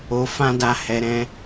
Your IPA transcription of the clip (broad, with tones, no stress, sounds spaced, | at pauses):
o˨ f ã˧ d a˨ h ɛ˨ ɾ ɛ̃˧